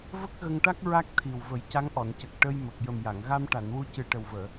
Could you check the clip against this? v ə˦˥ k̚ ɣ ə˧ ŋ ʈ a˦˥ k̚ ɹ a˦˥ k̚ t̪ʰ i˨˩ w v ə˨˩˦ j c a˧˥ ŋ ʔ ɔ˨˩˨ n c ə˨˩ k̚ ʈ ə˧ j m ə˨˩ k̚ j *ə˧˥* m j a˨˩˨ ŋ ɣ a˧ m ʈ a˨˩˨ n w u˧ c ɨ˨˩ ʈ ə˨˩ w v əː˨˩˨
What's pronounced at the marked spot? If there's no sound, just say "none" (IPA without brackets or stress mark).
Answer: ə˨˩